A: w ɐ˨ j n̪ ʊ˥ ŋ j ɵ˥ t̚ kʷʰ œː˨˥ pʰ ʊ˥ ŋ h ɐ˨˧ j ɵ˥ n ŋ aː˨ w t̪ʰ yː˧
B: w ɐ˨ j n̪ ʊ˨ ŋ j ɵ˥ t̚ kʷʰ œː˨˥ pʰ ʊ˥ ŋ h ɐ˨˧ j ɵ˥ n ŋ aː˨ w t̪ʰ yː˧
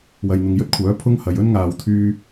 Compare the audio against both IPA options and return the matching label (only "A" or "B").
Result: B